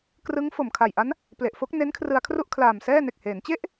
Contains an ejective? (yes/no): no